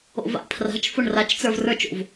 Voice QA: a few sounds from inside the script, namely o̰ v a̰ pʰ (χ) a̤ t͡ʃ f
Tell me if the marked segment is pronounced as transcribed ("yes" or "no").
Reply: no